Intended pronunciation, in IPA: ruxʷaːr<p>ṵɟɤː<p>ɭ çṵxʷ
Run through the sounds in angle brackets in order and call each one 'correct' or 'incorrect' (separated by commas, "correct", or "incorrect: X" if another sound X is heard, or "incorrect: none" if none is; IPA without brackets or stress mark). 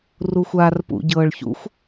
correct, incorrect: none